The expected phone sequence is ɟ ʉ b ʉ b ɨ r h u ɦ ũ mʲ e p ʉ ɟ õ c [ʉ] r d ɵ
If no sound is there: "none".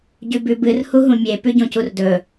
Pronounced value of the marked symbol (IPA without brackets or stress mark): u